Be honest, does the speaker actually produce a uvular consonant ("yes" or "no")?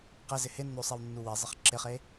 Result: yes